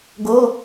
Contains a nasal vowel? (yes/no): no